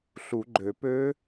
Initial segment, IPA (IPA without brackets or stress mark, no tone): ɬ